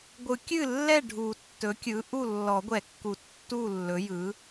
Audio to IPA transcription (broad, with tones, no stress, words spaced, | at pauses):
ɡʷɯ˨˩˦kʲɨ˥˩lːɛ˥˩ ɖʱu˨˩˦tːɵ˩˥kʲɯ˩˥ ʔu˥˩ lːɔ˨˩˦ɡʷɛ˨˩˦kːu˨˩˦ tːu˥˩lːɵ˩˥ jɯ˩˥